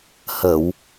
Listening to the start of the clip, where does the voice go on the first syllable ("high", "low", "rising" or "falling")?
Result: low